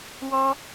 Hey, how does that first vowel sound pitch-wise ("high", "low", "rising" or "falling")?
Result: high